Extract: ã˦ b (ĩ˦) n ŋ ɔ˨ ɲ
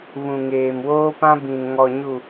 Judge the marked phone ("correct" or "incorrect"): incorrect